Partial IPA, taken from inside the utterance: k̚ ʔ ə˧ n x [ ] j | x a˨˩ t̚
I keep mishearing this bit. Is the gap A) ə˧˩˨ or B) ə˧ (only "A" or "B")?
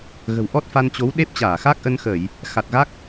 A